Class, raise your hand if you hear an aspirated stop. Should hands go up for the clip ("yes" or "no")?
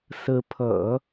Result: yes